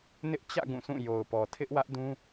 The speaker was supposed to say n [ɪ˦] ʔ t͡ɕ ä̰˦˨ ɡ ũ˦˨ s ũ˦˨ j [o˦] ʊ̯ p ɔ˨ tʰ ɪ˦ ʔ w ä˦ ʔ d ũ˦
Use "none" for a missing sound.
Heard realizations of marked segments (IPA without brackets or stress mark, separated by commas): ɪ˦, o˨